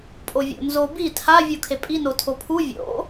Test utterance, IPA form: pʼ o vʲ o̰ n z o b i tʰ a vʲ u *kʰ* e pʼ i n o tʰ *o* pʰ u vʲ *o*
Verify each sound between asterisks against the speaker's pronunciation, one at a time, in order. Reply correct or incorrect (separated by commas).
correct, correct, incorrect